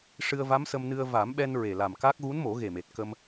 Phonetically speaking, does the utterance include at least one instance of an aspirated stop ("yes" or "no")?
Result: no